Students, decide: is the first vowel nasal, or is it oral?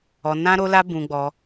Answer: oral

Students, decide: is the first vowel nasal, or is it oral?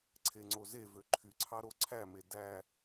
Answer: oral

